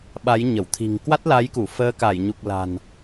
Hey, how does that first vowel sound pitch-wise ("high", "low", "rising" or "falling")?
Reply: rising